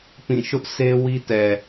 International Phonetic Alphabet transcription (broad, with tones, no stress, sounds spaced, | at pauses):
p ĩ˦˨ ʃ ʊ˦ ʔ sʰ e˦ w i˦ t ɛ˨